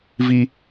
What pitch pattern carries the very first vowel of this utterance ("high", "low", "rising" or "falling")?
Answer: high